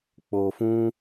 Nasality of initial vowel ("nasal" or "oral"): oral